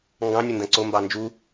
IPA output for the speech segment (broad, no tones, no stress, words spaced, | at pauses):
ŋɡɑ̃nʲʊndɐ̃ ǀombɑ nd͡ʒu